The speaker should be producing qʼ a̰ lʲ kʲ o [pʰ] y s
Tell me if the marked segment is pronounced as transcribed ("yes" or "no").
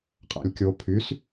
yes